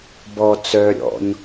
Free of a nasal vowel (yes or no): yes